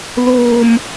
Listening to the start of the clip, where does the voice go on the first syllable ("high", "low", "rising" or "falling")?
high